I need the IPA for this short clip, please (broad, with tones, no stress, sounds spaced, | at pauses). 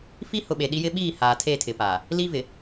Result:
f i˦ h ʊ˨ ɓ e˨ ɗ i˦ j ɪ˦ ɓ iː˦˨ h aː˨ tʰ e˦˨ tʰ ɪ˨ p aː˨ | l i˦ v ɪ˨